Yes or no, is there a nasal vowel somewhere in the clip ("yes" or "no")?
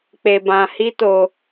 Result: yes